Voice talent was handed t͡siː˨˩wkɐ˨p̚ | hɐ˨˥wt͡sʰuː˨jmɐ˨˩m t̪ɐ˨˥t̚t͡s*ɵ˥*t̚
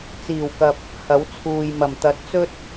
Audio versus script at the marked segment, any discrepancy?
no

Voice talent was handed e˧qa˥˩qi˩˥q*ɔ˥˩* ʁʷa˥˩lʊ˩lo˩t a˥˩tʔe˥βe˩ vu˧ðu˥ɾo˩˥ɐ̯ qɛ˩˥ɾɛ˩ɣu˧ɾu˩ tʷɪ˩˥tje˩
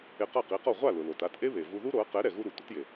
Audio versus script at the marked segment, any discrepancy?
no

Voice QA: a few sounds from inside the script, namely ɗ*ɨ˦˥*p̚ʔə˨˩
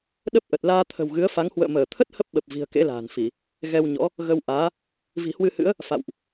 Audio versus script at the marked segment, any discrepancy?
yes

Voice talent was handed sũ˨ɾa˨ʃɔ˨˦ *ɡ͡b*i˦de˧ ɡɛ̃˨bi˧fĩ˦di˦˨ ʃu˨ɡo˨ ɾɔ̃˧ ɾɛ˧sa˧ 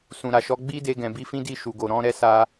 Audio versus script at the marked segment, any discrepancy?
no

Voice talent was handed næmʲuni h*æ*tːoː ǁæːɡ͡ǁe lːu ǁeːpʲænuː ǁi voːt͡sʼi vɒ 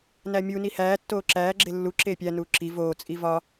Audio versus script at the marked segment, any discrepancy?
yes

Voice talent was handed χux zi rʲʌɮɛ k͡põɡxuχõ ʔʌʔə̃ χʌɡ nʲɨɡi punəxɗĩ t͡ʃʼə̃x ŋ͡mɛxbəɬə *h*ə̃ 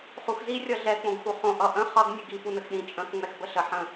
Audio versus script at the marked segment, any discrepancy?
yes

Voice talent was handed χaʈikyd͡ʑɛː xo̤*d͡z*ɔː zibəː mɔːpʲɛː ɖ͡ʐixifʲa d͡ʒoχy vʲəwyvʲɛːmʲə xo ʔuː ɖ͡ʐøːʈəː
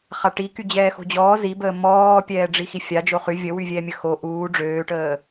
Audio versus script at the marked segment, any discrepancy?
yes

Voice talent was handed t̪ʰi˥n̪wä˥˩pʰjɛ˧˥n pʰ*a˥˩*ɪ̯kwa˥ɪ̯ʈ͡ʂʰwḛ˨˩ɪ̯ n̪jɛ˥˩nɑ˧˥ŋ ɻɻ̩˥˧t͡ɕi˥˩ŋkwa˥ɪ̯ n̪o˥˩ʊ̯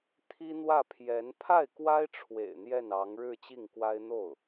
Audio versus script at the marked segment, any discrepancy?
no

